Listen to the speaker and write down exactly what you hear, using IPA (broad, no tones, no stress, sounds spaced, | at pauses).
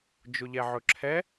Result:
d͡ʒ ʊ ʎ ɛ ʕ ɵ ǁʰ ɛ